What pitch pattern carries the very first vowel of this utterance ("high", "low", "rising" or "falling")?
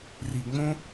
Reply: low